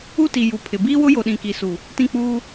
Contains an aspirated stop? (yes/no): yes